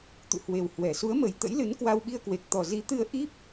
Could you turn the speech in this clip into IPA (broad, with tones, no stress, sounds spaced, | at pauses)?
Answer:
t̪ ṵ˧˨ h w e˨˩ w h w ɛ˨˩ s u˨˦ ə̯ m ə˨˩ j t̪ ə̰˧˥ j l ɨ˨˦ n k w a˧ w ɓ i˧ ə̯ k w e˨˩ k̚ t̪ ɔ˨˩ z i˨˦ t̪ ɨ˧ ə̯ ʔ i˦˥ p̚